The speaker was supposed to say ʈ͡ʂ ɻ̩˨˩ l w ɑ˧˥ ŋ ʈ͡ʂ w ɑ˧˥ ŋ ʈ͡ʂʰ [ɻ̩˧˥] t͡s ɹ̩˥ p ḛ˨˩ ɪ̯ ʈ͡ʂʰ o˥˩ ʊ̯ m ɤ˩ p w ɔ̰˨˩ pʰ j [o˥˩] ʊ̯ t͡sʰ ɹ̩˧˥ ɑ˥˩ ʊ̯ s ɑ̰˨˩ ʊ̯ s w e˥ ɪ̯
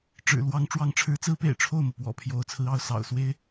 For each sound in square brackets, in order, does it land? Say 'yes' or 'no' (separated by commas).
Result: yes, no